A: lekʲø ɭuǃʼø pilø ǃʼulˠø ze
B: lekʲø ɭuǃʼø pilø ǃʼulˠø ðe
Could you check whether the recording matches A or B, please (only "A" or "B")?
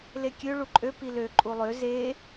A